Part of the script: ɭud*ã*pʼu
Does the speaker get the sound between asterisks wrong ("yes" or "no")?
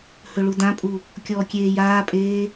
no